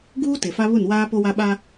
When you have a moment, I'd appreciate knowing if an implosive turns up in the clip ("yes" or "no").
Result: yes